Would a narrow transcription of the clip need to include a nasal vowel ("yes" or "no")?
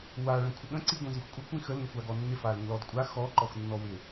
yes